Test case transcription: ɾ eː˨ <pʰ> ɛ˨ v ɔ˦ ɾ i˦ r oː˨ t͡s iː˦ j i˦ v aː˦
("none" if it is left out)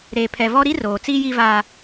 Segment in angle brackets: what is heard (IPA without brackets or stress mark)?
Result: pʰ